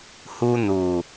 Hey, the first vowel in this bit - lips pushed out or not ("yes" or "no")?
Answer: yes